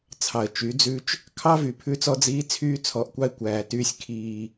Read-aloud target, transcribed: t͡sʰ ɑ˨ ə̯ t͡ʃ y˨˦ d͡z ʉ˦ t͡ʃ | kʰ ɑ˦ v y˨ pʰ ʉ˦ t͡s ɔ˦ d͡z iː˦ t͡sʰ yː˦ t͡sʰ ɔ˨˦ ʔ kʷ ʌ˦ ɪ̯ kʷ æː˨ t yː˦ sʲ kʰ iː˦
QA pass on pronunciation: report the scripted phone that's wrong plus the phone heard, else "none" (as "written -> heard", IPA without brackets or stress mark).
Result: ʌ˦ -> ɑ˦